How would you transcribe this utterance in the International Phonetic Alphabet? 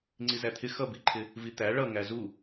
ŋ͡ǀizæt̪ʰɪ xʌbiǃʰɪ | vit̪æ ɭʌ ŋæzu

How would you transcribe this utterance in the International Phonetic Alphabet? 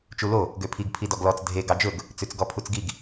t͡ʃulo | ɡøpʰiɡ pʰidɔɡlɔt͡s dʱe ɡɑd͡ʒɵɡ | t͡sʉt͡sɡɔpʰut͡sɡiɡ

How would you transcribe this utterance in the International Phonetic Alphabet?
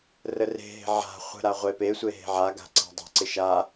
rəre̤ɦe̤ ʕa̤ χʷə̤ɾa ʁʷepesʷe ɦe̤ʕaɡa̤ ǀa̤dˤe̤ǀɪ ʃa

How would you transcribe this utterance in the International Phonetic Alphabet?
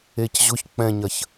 ecʑʊç k͡pɛ̃ɲɐç

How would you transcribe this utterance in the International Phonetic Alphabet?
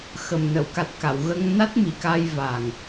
xə˨˩mnə˨˩˨wka˨˩t̚ ka˨˩˨wɣə˧ŋ na˦˥t̚mi˨˩˨ka˧jva˨˩ŋ

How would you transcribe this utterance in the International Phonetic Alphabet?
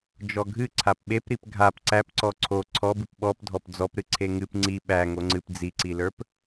d͡ʒɔɡʱɨ ǀʰapɓepɾip ɡʱap ǀæpǀɔ ǀʰo ǀʰɔbɨp ɓɔp dʱɔpd͡zɔpɾɨ ǀʰeŋɨp ŋ͡ǀi ɓæ ŋoŋ͡ǀɨp d͡ziǀilə˞p

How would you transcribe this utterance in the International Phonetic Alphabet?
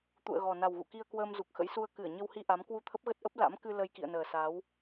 t̪ṵ˧˨ə̯ɣɔ˨˩ na˨˩wɣṵ˧˨ki˧ə̯ kwəː˧mzu˨˩k̚xə̰˧˥jsu˧ə̯ kɨ˧˩ə̯ɲə˧whi˧ ʔa˨˦m kwu˧t̪ʰə˦˥p̚ɣə˦˥t̚ʔə˦˥p̚ la̰˧˥m kɨ˧ lə˧jkḭ˧˨ə̯nəː˨˩ sa˨˦w

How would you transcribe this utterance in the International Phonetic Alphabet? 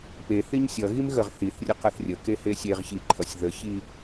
peθiɲ sʲʌɣim ɣəʁ θiθrʲə qʌθrʲəke hesʲeʁçi ǃʰʌsʲðəçi

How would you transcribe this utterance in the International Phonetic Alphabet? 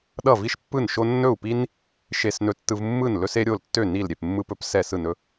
ɗʌ˧˩ vi˧ʃpːɯ˧˩nʃo˧ nːɵ˧˩u̯pi˧n | ʃe˧˩snɵ˧˩tːɯ˧v mːɯ˧˩n lɵ˧se˧ɾʲo˧˩ltːø˧˩ ni˧˩l ɾʲe˧˩pmːɯ˧pɵ˧p sɛ˧˩ sɯ˧˩nɵ˧

